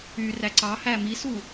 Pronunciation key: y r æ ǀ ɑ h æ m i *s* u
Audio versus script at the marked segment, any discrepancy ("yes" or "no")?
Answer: no